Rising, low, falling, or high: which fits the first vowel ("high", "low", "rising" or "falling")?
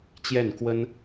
falling